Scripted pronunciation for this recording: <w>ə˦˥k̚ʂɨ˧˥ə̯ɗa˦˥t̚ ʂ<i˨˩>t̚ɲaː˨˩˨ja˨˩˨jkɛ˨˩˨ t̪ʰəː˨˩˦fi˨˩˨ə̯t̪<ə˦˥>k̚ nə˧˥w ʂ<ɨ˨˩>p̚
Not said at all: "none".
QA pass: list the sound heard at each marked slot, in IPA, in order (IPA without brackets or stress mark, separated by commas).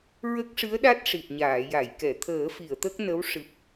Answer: ɹ, i˨˩, ə˦˥, ɨ˨˩